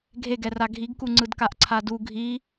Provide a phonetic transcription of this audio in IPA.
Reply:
ɡʱ e ɡ ɛ r a ɡʱ i ɡ k u ŋ͡ǀ ɯ d k a ʔ ǀʰ a d u ɡʱ i

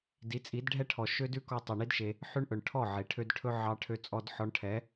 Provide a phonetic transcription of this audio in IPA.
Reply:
d i˨˦ t͡sʼ i˨˦ d ɖʱ ɛ˦ ʈʰ ɔ˨ ʃ ø˦ d ʉ˦ k ɔ˧ tˤ i˨ ɳ i˦ d ʃ e˧ | ħ ʉ˦ ɳ ʔ ɵ˨ ɳ ʈʰ ɔ˦˨ ʕ e˨ ʈʰ ø˧ d ʈʰ ɵ˦ ʕ ɑ˧ ʈʰ ø˧ t͡sʼ ɔ˧ d ħ ɔ˧ ɳ ʈʰ ɛ˨˦

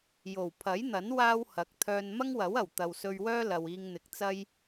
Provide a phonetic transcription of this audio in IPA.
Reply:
j o˨˩ w pʰ ɐ˨˥ j n̪ ɐ˨˥ n w aː˥ w h ɐ˨˥ k̚ t̪ʰ œː˧ n m ɐ˥ ŋ w ɐ˨˥ w ɐ˨˩ w t̪ ɐ˨ w s ɵ˧ ɥ w œː˥ l ɐ˨ w iː˧ ŋ n̪ ɪ˨ k̚ t͡s ɐ˧ j

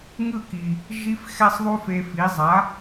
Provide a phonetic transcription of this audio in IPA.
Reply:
ŋ ɯ˥˩ k i˩ | ʒ i˧ f x ɛ˥ sˤ ðˤ u˥ f e˧ f i˩˥ zˤ a˩˥

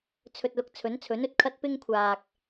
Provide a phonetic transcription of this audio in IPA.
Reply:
t͡sʰ ɵ˧ t̚ l ʊ˧ k̚ t͡sʰ ɵ˨˥ n t͡sʰ ɵ˨˥ n ɵ˨ t̚ kʰ ɐ˥ t̚ p ɪ˥ ŋ kʷʰ aː˨ k̚

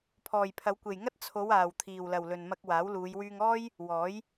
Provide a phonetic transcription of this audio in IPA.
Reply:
pʰ ɔː˨ j pʰ ɐ˨˧ w kʷ e˨ j ŋ ɐ˥ t̚ t͡sʰ o˨˧ w aː˨ w t̪ʰ iː˨ w l ɐ˨ w l ɵ˨ n m ɐ˧ k̚ w aː˨˥ w l uː˨˧ j w yː˧ ŋ ɔː˥ j | w ɔː˨˥ j

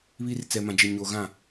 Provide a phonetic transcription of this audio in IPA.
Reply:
β i˦ r t͡s ɛ˨ m ã˨ d͡ʒ e˨ ɲ oː˨ ɣ ã˦˨

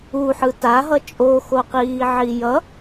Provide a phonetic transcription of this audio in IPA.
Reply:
u ħ ɯ t a ɦ ʌ t͡ʃʼ o x o q iː ʕ i j ʌ

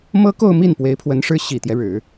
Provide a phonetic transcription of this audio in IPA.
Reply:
m ɤ˥ k o˥˧ ʊ̯ m i˥˩ n p w e˧˥ ɪ̯ pʰ w ə˧˥ n ʂ ɻ̩˥ ɕ i˨˩ t̪ j ɛ˦ ɻ ɻ̩˨˩˦

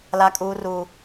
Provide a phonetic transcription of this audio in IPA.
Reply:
l a˦ kʼ uː˦ r uː˦

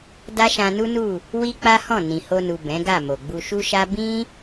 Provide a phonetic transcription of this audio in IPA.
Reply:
d a˦ ʃ ã˧ n u˦ n u˦˨ | w i˦ k͡p a˦ h ɔ̃˦˨ n ĩ˨ h o˧ n u˨ b ɛ̃˨˦ ɡ a˦˨ m o˨ ɡ͡b u˧ ʃ u˦ ʃ a˦ b ĩ˦

